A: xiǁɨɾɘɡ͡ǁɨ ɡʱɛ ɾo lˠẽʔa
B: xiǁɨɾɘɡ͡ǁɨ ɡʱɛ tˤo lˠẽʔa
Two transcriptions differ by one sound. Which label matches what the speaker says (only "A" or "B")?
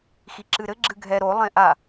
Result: A